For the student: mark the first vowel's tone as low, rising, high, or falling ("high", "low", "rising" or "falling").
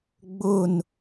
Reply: falling